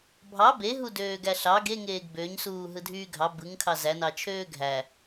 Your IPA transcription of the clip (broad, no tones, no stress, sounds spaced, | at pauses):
bʱ ɑ b e ɦ u d øː ɡ æ ɬ ɑ ɡ e ŋ eː ɡ b ø ɲ s uː ɦ ɯ dʱ yː ɡʱ ɑ b ɯ ŋ kʰ ɑ z æ n ɑ t͡ʃʰ øː ɡʱ æ